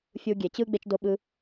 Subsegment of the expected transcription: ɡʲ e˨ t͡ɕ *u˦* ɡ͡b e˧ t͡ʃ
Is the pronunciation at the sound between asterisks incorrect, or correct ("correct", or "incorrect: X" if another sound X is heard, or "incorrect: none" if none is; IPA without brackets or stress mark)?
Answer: incorrect: ɯ˦